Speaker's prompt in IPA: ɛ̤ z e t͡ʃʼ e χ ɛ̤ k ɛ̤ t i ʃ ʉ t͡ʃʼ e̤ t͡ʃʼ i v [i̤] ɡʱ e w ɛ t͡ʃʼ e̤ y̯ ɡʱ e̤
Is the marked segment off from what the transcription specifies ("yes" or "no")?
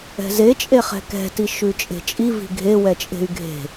no